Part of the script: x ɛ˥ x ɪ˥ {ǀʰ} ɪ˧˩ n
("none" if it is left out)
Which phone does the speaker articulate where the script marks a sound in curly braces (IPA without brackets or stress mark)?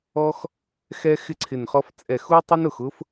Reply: ǀʰ